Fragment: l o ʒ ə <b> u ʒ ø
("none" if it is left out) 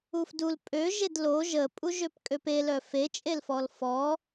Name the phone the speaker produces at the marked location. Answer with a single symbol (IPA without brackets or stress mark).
pʼ